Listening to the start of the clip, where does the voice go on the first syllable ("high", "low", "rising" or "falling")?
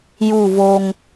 falling